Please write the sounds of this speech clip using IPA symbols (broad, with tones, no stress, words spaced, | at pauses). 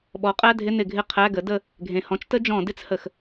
ɓɔ˩˥qʼæ˧˥˧dʱɪ˧˥˧ nɪ˧˩˧ɡʱɪ˧˥˧ qʰæ˧˥˧ɡə˩˥də˦˨ | ɡʱẽ˩hɔ̃˩˥t͡ʃtə˥ d͡ʒɔ̃˧˩˧dɪ˥t͡s hə˩x